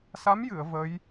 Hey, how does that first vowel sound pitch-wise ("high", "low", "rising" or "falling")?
rising